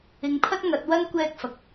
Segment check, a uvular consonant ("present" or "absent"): absent